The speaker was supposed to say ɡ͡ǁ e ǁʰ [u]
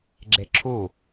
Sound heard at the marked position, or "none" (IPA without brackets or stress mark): u